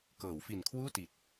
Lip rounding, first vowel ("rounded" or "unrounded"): unrounded